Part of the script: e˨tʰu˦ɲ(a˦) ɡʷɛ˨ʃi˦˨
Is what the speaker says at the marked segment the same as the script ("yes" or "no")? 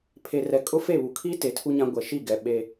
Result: no